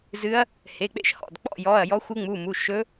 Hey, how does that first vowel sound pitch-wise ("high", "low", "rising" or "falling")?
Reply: rising